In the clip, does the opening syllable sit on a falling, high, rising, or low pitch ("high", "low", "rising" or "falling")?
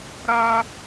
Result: high